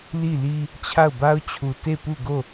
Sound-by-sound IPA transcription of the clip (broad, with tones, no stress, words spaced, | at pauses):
li˦˨li˦ | t͡ɕʰa˦˨ʊ̯ba˦ʊ̯t͡ɕʰu˨ te˦˨pu˦˨ɡo˦˨